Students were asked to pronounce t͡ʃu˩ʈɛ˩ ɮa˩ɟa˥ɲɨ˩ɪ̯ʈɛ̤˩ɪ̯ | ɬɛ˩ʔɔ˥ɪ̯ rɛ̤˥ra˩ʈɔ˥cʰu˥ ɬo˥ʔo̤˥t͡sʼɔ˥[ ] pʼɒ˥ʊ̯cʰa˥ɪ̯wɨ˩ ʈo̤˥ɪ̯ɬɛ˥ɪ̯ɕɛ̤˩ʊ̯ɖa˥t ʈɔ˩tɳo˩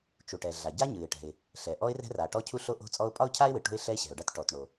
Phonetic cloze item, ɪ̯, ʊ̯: ʊ̯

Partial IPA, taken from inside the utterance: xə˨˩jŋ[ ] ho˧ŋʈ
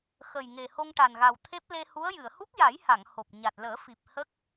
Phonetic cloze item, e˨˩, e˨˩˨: e˨˩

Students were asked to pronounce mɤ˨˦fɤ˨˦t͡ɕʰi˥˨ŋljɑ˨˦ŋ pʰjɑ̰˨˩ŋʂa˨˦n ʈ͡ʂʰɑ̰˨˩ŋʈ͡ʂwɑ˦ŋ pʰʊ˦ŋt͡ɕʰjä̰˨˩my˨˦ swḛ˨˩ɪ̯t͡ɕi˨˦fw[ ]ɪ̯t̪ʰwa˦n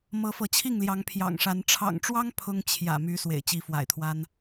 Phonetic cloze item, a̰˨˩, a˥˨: a̰˨˩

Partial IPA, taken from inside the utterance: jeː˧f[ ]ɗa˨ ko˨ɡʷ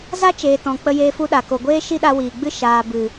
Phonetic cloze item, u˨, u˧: u˧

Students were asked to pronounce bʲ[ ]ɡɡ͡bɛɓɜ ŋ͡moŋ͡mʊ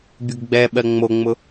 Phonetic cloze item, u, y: u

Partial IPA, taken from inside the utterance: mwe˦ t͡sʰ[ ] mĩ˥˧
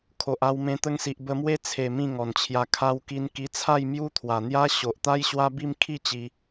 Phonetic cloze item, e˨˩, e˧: e˨˩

